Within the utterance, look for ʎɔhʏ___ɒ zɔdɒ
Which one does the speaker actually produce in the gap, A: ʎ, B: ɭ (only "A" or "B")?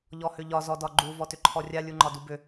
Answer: A